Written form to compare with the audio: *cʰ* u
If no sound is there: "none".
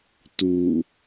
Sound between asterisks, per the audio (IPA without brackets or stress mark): t